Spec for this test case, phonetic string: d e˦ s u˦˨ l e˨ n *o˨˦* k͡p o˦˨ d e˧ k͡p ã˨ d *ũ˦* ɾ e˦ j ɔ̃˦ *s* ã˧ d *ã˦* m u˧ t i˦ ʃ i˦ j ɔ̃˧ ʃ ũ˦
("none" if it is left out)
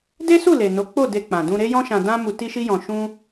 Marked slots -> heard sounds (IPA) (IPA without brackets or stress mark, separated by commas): o˨˦, ũ˧, ʃ, ã˦